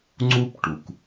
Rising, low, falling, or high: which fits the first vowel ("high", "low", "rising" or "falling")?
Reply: high